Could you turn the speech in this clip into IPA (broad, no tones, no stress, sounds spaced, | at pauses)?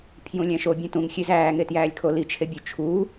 pʰ j ũ lʲ æ̃ ʃ o bʲ ẽ t ũ ŋ xʲ e z æː ŋ e t j æː lʲ kʰ o l i t͡ʃʰ e bʲ ø t͡ʃʰ u